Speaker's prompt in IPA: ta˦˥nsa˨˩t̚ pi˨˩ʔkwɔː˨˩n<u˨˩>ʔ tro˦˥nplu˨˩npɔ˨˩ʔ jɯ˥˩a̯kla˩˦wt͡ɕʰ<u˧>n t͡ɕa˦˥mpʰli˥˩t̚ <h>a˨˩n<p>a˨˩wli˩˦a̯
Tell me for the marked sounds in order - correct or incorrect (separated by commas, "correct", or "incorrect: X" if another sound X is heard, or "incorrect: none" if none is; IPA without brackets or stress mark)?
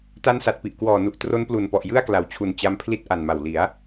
correct, incorrect: u˨˩, incorrect: ʔ, incorrect: m